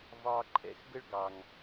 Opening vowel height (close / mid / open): open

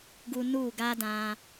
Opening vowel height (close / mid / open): close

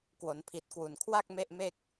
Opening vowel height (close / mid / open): mid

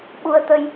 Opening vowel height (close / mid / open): close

